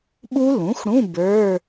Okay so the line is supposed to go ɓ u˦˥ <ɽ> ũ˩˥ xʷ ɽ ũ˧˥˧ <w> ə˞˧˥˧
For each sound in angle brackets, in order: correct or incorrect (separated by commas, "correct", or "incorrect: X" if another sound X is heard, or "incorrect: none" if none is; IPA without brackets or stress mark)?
incorrect: l, incorrect: b